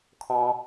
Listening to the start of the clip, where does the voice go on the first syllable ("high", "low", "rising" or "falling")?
high